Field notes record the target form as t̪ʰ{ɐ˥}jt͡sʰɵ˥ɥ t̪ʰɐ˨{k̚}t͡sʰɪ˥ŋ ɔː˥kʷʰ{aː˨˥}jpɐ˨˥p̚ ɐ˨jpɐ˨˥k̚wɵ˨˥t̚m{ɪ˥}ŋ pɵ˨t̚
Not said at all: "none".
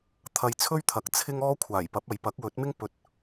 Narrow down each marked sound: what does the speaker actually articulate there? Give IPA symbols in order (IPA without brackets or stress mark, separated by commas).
ɐ˧, k̚, aː˨˩, ɪ˥